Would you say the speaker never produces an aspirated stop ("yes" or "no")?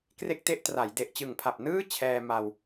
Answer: no